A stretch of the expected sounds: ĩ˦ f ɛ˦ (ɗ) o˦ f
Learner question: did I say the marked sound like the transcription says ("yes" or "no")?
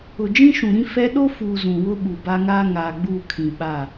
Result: yes